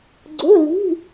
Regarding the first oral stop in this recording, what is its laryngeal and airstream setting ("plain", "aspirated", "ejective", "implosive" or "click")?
click